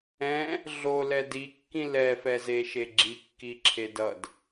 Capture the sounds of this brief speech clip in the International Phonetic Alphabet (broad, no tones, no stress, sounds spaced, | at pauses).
ɛ̃ | ɮ o l ɛ d i kː ĩ l ɛ f ɛ z e ʃ e ɡ͡ǁ i kː i ǁʰ e d ʌ d